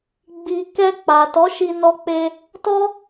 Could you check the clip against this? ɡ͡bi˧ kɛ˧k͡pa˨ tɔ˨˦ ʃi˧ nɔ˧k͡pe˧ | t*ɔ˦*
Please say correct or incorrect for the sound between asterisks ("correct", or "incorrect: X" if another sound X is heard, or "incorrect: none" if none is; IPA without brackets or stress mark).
correct